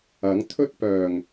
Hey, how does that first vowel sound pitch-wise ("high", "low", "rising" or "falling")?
rising